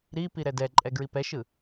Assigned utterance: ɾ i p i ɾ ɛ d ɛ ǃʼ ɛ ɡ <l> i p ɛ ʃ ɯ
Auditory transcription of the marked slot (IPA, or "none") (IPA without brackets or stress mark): ɹ